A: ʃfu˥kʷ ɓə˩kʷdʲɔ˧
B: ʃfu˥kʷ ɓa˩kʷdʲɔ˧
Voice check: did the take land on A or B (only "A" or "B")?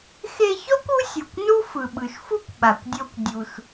B